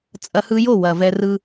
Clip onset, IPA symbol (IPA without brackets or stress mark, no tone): t͡sʼ